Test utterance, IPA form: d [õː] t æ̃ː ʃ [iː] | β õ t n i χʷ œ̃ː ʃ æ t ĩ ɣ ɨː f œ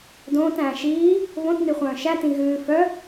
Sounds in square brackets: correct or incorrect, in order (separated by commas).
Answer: correct, correct